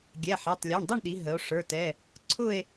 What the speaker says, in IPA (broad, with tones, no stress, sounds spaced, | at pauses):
ɡʲ ɛ˩˧˩ ħ æ˩˧˩ tˤ lʲ ɔ˩˧˩ ɳ dˤ ʌ˥˧ ɳ ɗ i˩˧ ɦ ə˩˧ o̯ ʂ ə˞˩˧˩ t ɛ˩˧˩ | ǀʰ ʊ˥˧ e̯